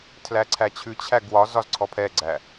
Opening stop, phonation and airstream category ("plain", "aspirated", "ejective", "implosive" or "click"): aspirated